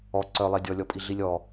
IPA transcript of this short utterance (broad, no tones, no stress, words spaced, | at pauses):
ɔ ǀœlˠe dʲɔlʲɔpʼi ɮilʲɔ